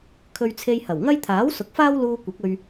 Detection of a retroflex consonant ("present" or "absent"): absent